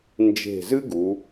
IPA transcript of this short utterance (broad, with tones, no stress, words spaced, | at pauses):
nd͡ʒe̤˧˩zɨ˥ɡu˩˧